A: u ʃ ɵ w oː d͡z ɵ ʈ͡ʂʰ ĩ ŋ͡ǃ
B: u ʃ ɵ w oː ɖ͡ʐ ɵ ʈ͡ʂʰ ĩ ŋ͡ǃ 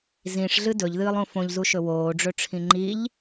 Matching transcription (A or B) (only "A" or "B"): B